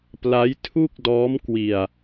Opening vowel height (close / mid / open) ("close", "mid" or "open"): open